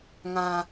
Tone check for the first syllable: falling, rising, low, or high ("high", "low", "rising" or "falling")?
low